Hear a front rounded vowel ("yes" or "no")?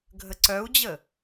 yes